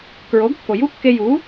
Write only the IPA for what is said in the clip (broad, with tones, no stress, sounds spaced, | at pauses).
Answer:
k ɹ o˩˥ ɡ kː o˩ j u˥ kː e˧ j u˩˥